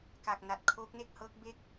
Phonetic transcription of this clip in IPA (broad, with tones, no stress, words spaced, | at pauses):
ka˨˩k̚na˨˩t̚ kʰoː˦˥k̚ne˥˩k̚hɤː˦˥k̚ be˥˩k̚